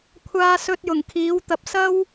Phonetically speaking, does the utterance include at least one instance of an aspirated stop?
yes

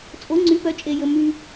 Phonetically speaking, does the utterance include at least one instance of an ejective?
yes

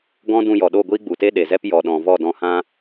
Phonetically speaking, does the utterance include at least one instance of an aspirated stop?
no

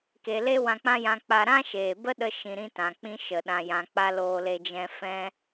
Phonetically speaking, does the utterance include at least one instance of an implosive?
yes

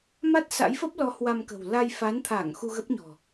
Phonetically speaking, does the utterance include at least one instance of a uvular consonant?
no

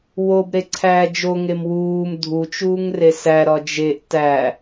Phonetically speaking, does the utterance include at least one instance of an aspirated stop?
yes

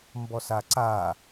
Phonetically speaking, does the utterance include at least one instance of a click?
yes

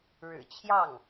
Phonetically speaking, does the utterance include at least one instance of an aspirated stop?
yes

